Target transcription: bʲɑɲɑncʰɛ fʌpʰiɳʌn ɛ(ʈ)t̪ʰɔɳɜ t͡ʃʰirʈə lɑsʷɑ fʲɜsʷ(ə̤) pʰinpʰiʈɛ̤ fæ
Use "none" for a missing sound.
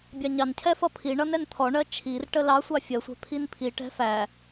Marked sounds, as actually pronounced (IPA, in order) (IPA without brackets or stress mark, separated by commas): n, ɛ̤